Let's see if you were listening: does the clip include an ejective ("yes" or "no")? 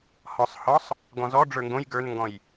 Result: no